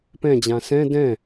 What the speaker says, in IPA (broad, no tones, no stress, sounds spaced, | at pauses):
p ɛ̃ d͡ʑ ã s ɛ̃ d ɛ̃